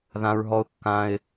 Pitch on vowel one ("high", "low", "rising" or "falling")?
high